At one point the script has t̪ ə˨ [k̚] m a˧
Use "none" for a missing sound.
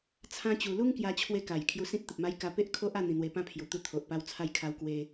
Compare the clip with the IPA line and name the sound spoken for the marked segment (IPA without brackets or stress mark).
p̚